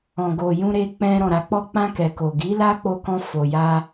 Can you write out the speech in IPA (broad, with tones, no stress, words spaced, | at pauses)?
ɔ̃˨ɡo˨ jũ˧ɾe˧k͡pɛ̃˧ ɾɔ̃˨ɾa˨k͡pɔ˧k͡pã˧ kɛ˨ko˨ɡi˨˦ la˦k͡po˧kɔ̃˧ fo˨ja˧